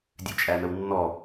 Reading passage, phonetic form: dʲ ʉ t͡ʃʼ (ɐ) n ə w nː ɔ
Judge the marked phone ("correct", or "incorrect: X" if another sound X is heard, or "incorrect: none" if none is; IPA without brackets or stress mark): incorrect: æ